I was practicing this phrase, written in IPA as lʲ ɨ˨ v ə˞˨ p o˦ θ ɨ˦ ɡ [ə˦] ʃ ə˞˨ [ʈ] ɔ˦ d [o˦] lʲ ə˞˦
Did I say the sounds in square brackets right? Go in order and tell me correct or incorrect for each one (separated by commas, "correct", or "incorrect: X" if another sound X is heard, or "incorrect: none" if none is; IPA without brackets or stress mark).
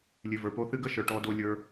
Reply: correct, correct, correct